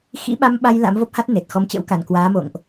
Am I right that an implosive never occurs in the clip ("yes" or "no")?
no